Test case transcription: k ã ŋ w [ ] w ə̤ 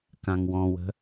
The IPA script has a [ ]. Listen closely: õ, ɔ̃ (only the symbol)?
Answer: ɔ̃